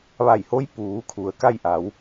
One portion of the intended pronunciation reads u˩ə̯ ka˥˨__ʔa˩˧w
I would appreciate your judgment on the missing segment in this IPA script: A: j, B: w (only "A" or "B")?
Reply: A